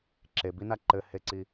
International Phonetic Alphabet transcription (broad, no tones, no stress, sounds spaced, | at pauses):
ǁ e b i n a ǃ ɘ h e ǀ i